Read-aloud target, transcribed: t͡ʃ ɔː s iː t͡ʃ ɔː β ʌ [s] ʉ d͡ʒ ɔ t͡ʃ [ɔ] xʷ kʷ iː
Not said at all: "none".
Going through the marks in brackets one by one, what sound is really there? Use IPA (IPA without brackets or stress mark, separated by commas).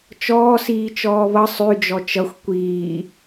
sˤ, ʌ